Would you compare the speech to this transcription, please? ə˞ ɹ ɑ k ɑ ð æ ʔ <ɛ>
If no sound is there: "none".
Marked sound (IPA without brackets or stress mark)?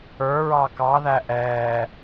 ɛː